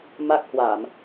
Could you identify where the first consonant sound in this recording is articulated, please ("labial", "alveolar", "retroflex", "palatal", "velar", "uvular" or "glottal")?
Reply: labial